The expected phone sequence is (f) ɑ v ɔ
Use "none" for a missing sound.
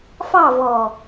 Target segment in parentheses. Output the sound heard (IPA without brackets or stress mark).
f